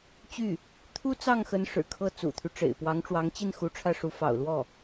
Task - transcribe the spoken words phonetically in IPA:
t͡ɕy˥˩ | t̪ʰu˥ t͡sɑ˥˩ŋxə˧˥n ʂɻ̩˨˩kʰɤ˥˩ t͡sṵ˨˩t̪ʰy˦ʈ͡ʂḛ˨˩ɪ̯ pwɑ˧˥ŋʈ͡ʂwɑ˧˥ŋt͡ɕi˥˩nxu˧˥ ʈ͡ʂʰä˥˩ʂu˧˥ fɑ̰˨˩ʊ̯lwɔ˥˩

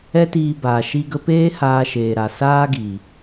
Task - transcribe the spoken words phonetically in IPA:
ɛ˦tiː˧baː˨ ʃi˧ɡə˧peː˦ haː˧ʃeː˨ ɾa˨saː˦ɡi˨

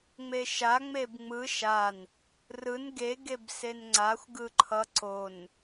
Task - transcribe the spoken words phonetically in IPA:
ŋ͡meʃa ŋ͡mebŋ͡mɯ ʃan | rɯn ɡe ɡebsenŋ͡ǀaxʷ ɡɯǃʰʌ ǀon

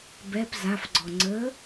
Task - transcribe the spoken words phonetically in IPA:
bɛp zafɡ͡ǀɔ ŋ͡ǀə

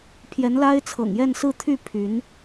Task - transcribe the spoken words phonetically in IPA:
pʰjɛ˧˥nla˥ɪ̯t͡sʰɤ̰˨˩ŋ jɛ˥˧nsɹ̩˥˧ t̪ʰy˥˩ pʰy˧˥n

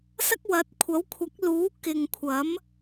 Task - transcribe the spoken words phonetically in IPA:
sɐ˥k̚wɐ˨˥t̚ kʷʰɐ˨˥wkʷʰɐ˨˥k̚ luː˨˥ kɪ˨ŋkʷʰɐ˨˥m

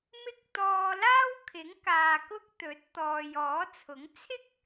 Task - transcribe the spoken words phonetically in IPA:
mɪ˧k̚ t̪ɔː˧laː˥wkʰɪ˨˥ŋkaː˨ kʊ˥k̚t̪ɵ˨˥t̚ t̪ɔː˨jɔː˨˥t͡sʰʊ˨˥ŋ t͡sʰɪ˥k̚

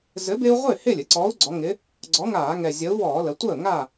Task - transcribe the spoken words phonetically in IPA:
zɘ˨˥bɪː˦u̯ʁʷɪː˥˩ hɪː˥˩lʲɘ˩˧ǀɔː˨˥u̯ɡ͡ǀɔ˩˧ ŋɪ˩˧ | ɡ͡ǀɔ˨˥ŋaː˧˩˧ŋɛ˨˩ zʲə˨˥u̯ wɔː˧˩˧lə˩˧tʷəː˥˩ ŋaː˥˩

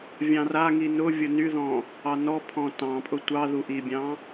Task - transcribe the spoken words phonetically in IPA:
vʲɑ̃raŋi nʊ vʲʊnyðɔ̃ | ɑnɔpʰɔ̃ tɑ̃pʼʊ tʷɑ ðuʔibʲɑ̃

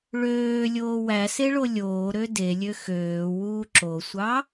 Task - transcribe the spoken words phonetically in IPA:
ɭøːlʲoː wæseɭo lʲoːɾø delʲø xøːwuː ǁosʷɑ

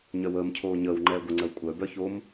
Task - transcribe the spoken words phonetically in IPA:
ɲœwəːm cʰoːɲəːw ŋ͡ǃɛːɡʷə ŋ͡ǀəwkʷʼœ bœçom

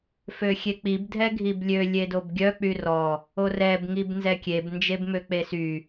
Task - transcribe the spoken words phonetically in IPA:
føxʲek͡pib dʱɛɡʱiblʲø lʲedobɡʲœ k͡pyrɔ | orɛb ŋibnzɛkʲeb nd͡ʒebmøk͡pesy

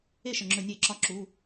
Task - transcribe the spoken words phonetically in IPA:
e˥˩ʃə˧˩˧ŋ͡ǁɵ˧˩˧ nʲe˧˩˧ǁɒ˨˦ ǁu˩˧˩

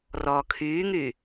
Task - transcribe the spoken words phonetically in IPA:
rɔːkʰyːŋyː

